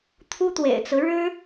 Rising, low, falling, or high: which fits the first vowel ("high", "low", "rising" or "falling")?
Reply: high